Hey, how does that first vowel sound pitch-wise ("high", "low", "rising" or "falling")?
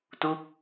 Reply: falling